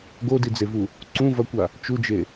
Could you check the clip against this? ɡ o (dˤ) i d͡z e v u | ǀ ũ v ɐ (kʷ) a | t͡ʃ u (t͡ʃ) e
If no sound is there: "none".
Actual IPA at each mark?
d, kʷ, d͡ʒ

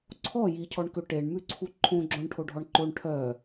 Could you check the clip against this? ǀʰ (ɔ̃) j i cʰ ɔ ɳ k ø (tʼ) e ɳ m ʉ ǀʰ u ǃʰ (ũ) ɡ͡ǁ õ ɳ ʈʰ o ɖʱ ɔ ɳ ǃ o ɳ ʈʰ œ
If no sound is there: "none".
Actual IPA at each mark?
ɔ, ʈ, õ

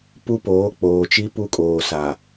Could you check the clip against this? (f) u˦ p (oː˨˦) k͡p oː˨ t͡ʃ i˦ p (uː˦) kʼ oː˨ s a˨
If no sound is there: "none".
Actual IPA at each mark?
p, oː˨˦, u˦

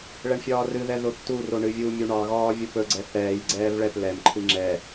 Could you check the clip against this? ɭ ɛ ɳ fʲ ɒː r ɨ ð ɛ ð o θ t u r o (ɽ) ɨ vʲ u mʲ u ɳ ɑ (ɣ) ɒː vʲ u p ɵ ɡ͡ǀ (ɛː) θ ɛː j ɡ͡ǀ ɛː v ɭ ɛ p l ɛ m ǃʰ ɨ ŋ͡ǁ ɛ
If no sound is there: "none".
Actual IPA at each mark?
ɳ, ɣ, ɛ

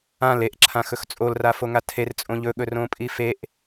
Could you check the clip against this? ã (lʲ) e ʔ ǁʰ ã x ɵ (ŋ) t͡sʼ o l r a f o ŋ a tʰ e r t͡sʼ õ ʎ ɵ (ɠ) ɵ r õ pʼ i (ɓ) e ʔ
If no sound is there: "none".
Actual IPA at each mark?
l, x, ɠ, f

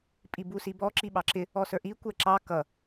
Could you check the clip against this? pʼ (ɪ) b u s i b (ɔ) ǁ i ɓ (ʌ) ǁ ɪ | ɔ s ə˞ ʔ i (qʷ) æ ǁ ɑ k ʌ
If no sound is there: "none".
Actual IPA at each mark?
i, ɔ, ɑ, kʷ

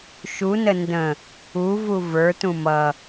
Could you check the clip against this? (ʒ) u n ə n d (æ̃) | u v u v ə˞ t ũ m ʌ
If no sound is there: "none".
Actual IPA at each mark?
ʃ, ə̃

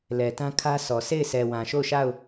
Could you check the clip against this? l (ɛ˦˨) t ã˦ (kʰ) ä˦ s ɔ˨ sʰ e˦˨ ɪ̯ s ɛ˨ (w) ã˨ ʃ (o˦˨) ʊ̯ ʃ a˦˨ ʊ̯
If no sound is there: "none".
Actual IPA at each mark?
ɛ˨, kʰ, w, o˦˨

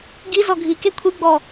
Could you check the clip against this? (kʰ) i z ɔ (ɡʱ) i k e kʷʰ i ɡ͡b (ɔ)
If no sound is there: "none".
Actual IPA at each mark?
ɡ, ɡʱ, ɔ

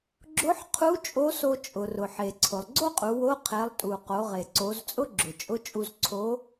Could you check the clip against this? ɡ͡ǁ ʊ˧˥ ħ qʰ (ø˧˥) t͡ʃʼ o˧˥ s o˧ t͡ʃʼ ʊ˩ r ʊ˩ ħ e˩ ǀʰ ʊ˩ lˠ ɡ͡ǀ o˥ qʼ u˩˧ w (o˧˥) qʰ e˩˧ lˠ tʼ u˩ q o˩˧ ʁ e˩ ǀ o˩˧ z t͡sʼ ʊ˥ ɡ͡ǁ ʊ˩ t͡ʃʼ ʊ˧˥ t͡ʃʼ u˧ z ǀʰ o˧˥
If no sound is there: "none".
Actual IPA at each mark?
u˧˥, o˧˥

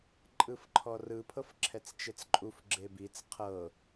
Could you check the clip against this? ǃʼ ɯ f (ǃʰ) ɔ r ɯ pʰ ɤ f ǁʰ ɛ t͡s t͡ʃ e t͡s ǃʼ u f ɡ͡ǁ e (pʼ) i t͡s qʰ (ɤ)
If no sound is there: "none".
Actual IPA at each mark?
ǃʰ, b, ɤ

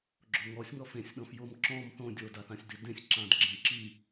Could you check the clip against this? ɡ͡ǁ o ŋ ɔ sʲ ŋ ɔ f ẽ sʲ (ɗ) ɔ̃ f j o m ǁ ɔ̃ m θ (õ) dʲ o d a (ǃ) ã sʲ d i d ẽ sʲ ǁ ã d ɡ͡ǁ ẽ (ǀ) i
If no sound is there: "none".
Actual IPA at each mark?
ɗ, õ, θ, ǁ

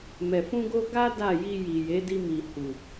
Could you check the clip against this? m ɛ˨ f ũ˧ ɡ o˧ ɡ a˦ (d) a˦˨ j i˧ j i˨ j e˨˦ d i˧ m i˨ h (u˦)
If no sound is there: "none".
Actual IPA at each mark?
d, u˨

